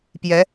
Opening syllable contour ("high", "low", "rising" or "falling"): rising